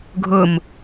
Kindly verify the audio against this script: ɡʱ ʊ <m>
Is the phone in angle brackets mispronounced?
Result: no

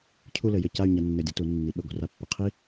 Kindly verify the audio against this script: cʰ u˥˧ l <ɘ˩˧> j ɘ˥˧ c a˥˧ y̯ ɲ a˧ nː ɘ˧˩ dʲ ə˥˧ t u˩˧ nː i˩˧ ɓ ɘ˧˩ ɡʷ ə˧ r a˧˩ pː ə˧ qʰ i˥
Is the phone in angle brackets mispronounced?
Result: no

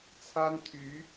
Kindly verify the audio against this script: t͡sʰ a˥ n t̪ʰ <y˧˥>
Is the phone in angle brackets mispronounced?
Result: no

